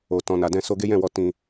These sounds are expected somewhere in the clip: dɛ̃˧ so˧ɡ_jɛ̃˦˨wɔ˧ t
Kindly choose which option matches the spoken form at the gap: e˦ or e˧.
e˦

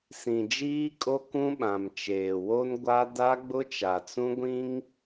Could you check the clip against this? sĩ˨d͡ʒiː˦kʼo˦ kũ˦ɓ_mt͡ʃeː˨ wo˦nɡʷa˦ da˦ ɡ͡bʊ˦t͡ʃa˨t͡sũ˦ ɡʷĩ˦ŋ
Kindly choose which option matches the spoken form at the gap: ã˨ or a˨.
ã˨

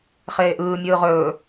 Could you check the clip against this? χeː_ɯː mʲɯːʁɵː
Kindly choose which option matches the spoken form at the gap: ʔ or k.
ʔ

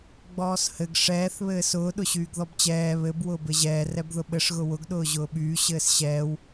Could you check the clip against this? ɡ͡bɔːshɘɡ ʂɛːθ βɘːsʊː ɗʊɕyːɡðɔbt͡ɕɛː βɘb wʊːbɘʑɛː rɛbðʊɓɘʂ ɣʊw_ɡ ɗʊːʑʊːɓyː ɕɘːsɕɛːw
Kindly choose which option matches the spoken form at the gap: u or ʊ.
ʊ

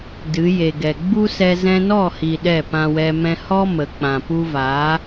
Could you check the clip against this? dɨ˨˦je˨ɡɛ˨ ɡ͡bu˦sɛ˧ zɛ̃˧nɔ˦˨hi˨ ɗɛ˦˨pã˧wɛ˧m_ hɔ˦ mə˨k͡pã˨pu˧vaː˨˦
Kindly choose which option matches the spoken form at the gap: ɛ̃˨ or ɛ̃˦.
ɛ̃˦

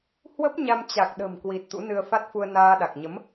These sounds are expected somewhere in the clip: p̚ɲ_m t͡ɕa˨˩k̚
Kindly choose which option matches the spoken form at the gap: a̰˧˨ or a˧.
a˧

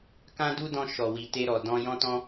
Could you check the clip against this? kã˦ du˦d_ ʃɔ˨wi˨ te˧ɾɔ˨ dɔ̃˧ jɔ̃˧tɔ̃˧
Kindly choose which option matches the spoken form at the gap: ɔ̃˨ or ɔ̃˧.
ɔ̃˧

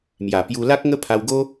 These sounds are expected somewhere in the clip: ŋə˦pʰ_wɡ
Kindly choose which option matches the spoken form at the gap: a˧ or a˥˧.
a˧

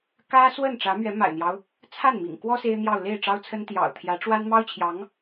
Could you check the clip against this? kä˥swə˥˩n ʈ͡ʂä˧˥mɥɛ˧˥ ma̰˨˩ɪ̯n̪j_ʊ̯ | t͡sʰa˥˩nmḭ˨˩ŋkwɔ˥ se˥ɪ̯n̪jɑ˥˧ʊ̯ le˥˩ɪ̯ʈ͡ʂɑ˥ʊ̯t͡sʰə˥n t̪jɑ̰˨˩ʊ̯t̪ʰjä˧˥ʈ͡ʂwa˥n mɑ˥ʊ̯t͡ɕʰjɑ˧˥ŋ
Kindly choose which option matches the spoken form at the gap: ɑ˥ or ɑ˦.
ɑ˦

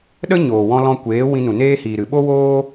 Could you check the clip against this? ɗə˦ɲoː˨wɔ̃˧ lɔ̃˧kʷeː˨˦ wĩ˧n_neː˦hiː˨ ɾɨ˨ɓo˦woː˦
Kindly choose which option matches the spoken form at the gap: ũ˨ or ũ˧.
ũ˨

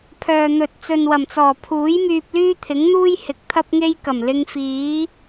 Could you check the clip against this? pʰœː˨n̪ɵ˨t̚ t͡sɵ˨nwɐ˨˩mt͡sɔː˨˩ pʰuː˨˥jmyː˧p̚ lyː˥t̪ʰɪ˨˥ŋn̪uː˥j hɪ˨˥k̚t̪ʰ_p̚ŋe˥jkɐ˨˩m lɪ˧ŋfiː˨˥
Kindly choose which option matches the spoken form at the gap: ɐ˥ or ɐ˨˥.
ɐ˥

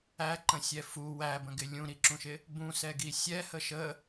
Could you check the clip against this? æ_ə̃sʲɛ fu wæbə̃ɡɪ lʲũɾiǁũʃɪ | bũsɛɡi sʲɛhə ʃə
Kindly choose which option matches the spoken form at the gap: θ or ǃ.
ǃ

